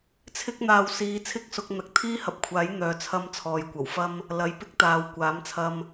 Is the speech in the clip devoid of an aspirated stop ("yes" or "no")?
no